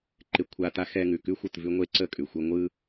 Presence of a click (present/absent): present